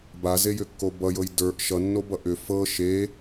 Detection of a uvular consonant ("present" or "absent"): absent